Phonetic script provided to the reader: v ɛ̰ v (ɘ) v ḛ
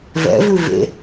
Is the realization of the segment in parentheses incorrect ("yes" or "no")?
yes